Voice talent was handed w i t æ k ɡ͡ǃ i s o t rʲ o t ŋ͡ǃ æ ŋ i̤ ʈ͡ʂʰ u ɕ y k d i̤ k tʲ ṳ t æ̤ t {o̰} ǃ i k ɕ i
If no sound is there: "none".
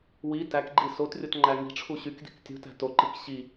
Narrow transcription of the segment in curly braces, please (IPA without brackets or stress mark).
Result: o